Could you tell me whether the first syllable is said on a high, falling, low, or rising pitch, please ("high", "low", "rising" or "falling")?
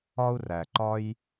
high